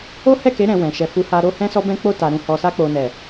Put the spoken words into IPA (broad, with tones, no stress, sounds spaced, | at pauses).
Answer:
o˦ h ɛ˦˨ k e˨˦ ɾ ɛ̃˧ w ɛ̃˨ ʃ ɛ˨ f u˨˦ h a˧ ɾ o˧ h ɛ̃˧ s ɔ˧ b ɛ̃˧ k͡p o˧ t a˨ ɾ ũ˧ h ɔ˨ s a˧ k͡p o˨ n ɛ˨